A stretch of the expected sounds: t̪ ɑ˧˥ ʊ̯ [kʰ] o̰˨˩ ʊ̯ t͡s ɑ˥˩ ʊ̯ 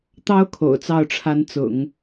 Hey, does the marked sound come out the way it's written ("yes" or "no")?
yes